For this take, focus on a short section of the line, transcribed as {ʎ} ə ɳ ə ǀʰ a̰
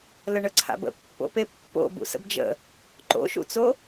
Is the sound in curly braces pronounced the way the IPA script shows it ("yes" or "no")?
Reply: no